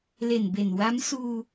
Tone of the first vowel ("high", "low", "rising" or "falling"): low